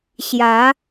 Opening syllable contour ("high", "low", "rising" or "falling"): rising